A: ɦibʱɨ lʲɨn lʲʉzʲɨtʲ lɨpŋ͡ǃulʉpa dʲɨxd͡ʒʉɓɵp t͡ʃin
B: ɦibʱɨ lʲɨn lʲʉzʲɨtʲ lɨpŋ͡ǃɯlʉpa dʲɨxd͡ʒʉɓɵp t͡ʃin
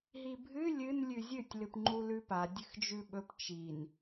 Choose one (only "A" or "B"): A